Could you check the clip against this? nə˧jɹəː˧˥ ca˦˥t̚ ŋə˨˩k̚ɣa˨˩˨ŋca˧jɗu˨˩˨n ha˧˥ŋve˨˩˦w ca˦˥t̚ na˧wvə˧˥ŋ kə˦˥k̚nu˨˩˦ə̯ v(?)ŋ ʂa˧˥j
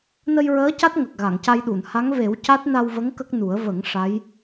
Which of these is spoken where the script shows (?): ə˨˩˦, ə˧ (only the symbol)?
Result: ə˨˩˦